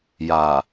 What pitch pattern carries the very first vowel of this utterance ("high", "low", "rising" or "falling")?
low